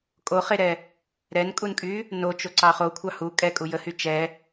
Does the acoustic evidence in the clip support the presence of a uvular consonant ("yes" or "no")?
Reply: yes